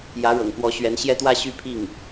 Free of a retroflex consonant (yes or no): no